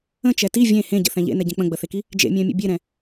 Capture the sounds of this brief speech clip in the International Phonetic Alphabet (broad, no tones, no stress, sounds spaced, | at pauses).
ə̃ t͡ʃ ɛ t i vʲ ẽ h ẽ ɟ ə̰ θ ɛ̃ ʎ ḛ n ɛ ɟ ɛ̃ k͡p ə̃ ɡ͡b ə θ e k i | d͡ʒ ḛ mʲ ɛ̃ mʲ ə̰ bʲ e ɾ ɛ̃